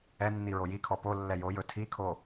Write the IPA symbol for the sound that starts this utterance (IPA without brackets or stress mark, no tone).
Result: ɛ